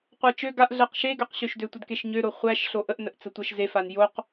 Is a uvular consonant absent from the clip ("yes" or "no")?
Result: no